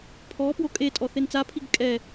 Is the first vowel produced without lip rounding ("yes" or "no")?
no